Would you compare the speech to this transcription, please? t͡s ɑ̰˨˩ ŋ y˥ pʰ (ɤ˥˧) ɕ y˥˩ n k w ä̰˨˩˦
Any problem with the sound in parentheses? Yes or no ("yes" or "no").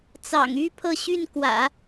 no